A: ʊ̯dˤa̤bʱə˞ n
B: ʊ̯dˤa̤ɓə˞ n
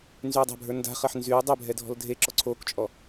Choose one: A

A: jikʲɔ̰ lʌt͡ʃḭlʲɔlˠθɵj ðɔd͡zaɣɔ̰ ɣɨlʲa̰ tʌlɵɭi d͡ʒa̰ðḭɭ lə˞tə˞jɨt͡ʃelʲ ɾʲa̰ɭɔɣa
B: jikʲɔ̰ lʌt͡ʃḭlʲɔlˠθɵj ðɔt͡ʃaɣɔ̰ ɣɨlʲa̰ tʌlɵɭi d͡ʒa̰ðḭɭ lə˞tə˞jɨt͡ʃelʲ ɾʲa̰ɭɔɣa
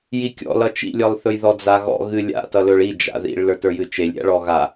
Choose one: A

